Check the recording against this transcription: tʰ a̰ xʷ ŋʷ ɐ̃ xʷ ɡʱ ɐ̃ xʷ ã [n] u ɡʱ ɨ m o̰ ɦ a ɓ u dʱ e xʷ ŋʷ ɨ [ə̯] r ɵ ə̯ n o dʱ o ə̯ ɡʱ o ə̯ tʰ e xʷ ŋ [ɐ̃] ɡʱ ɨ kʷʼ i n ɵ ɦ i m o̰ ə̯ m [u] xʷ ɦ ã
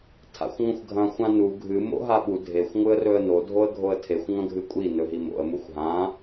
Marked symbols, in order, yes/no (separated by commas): yes, yes, yes, yes